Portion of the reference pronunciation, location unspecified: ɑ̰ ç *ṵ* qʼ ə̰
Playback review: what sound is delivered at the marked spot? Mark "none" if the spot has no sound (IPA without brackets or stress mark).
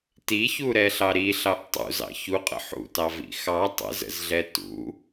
u